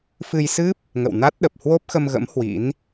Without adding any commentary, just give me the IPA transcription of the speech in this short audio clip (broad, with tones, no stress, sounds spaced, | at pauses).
f ɨ˧ j s ɨ˦˥ p̚ | ŋ ə̰˧˨ w n a˦˥ t̚ ɗ ə˨˩ p̚ h w o˦˥ p̚ x ə˧ m ɣ ə̰˧˥ m h w ḭ˧˥ n